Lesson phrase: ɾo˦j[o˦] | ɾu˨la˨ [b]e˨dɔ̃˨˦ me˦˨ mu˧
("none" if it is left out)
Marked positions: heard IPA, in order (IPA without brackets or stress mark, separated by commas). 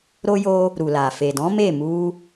o˦, f